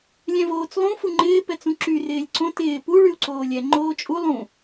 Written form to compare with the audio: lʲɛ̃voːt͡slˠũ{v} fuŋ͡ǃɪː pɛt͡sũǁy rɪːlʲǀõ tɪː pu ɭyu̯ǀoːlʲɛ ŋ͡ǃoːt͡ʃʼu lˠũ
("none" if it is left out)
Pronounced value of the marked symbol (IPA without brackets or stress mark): none